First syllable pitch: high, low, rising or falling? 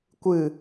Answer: low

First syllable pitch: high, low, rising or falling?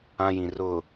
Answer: high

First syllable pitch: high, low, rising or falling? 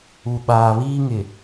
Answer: low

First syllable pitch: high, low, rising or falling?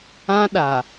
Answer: high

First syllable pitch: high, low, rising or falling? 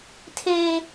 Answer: high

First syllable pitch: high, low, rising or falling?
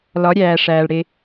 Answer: rising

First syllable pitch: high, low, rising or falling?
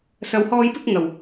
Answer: low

